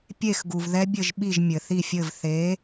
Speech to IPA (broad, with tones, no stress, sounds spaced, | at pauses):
pʲ e˦˨ x ɡ u˩ v ð ɛ˦˥ bʲ ɘ˦˨ ʒ ɓ i˦˨ ʒ mʲ ɘ˩ θ i˦˨ fʲ ɘ˦˨ v θ e˨˥